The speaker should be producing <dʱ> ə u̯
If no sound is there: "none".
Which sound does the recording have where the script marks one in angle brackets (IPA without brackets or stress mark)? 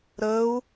ɾ